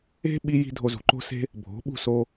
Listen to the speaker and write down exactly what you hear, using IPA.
e̤˦ɓi˧ji̤˧ dʱo˧zṳ˨ǃo̤˦se̤˦ | bʱo̤˨˦ɓṳ˦˨so˧

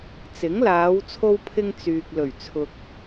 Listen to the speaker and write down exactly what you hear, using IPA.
t͡sɪ˨˥ŋlaː˨˧w t͡sʰo˥wpʰɪ˥ŋ t͡syː˨k̚ lɵ˨˩ɥ t͡sʰʊ˨k̚

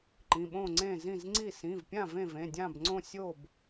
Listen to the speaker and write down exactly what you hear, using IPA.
ǃĩ˩˧˩ɓõ˥˨ŋ͡ǀẽ˥˨ zĩ˥˨zŋ͡ǀi˥˨ sĩ˩˧˩vpʲã˥˨ vẽ˥˨vẽ˩˧˩ dʲã˥˨bŋ͡ǀõ˥˨ sʲo˥˨b

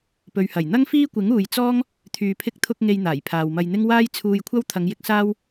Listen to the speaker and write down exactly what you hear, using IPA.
pɵ˨ɥhɐ˨˩j n̪ɐ˥ŋfiː˥kʷɪ˨˥ŋ uː˨jt͡sɔː˥ŋ | t̪ʰyː˨pʰɪ˧k̚t̪ʰʊ˧k̚ ŋe˧jn̪aː˨˩j pʰaː˨wmɐ˧jn̪ɪ˥ŋ waː˥jt͡sʰuː˧jkʷʰɐ˥w t̪ʰɐ˨˧ŋjɪ˨˥k̚ saː˥w

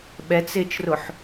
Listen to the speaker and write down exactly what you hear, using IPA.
ɓɛt͡sɪːt͡ʃrʊħ

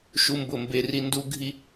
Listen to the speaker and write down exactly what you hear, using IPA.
ʃu˦mbʊ˦˨mbe˦ri˦ ndu˦ɡʱi˦

